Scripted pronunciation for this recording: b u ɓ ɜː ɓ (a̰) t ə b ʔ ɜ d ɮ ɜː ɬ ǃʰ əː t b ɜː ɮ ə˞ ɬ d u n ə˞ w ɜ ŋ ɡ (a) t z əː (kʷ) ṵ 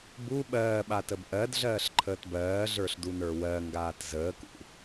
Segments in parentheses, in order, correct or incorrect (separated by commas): incorrect, incorrect, incorrect